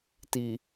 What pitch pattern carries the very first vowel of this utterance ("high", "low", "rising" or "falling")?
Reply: low